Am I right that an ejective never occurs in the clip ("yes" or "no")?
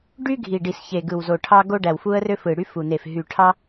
yes